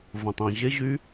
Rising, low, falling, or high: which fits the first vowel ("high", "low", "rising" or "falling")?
low